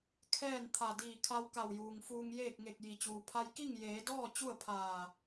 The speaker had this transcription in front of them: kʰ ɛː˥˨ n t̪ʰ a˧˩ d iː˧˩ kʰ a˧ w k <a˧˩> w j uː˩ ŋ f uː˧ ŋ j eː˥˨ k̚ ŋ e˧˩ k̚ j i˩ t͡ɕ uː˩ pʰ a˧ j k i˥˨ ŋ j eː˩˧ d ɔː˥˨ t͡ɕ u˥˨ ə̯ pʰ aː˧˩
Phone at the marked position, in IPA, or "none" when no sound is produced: a˧˩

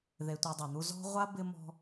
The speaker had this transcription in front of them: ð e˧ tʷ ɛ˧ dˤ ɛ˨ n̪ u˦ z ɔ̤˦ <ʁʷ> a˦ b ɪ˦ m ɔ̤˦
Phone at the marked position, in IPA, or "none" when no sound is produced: ʁʷ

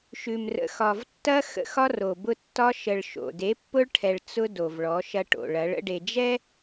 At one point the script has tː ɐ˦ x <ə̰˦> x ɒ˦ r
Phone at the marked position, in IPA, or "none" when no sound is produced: ə̰˦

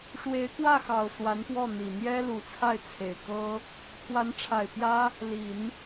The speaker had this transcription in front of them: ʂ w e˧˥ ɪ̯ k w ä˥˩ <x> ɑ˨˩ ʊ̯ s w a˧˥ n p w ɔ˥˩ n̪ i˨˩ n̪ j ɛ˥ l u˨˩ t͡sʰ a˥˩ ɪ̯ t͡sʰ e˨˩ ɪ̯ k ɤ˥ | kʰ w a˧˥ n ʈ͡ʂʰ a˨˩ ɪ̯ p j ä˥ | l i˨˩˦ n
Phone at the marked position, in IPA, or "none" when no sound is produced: x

